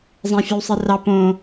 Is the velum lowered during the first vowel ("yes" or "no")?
yes